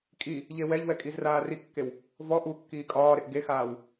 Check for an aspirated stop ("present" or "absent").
absent